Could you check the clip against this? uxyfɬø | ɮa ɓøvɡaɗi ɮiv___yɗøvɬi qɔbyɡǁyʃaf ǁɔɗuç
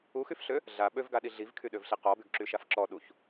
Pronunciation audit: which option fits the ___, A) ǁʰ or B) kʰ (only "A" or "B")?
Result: B